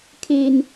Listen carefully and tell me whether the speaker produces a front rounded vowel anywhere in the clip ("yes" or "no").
no